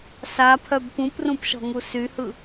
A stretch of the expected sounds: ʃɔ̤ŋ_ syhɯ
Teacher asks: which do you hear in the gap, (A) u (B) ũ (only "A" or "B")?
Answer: A